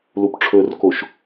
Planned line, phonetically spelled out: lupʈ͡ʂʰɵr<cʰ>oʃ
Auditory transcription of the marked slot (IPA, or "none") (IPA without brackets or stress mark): k